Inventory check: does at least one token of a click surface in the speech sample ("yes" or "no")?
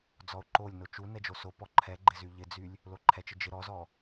yes